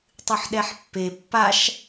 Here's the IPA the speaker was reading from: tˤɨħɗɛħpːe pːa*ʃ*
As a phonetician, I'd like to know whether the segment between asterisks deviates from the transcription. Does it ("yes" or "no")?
no